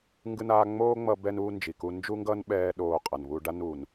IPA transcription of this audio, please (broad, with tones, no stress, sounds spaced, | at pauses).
ŋ ɡ ɯ˦ n aː˦ ŋ͡m oː˥ ŋ͡m ʌ˦ b ɛ˦ n uː˦ n d͡ʒ i˨ k u˦ n d͡ʒ u˥ ŋ ɡ ʌ˥ n ɓ ɛː˥ ɗ oː˦ qʼ ʌ˨ n β u˦ ɖ a˥ n uː˨ n